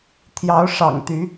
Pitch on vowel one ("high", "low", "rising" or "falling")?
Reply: rising